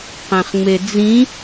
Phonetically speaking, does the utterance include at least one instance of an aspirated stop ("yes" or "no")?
no